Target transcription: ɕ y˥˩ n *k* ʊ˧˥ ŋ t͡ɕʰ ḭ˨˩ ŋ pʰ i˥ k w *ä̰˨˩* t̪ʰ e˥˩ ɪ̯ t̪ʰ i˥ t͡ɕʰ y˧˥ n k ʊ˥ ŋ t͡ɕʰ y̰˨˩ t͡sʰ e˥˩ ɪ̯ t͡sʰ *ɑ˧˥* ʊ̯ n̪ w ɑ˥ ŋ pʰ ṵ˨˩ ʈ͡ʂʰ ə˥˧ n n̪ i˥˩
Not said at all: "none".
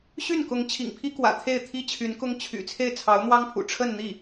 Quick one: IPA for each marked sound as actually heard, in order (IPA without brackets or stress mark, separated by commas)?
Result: k, ä̰˨˩, ɑ˧˥